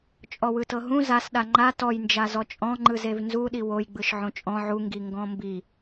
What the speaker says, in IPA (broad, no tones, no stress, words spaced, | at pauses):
t͡ʃʼɔwɯtɤɦũ zasɗa ŋ͡ǃa tɔjnd͡ʒazɔ t͡ʃʼɔ̃ŋ͡ǃɯ zevnzuɗi wojɡ͡bɯʃ ʕõt͡ʃʼɔ̃ ʕuŋɡi ŋɡɔ̃mbi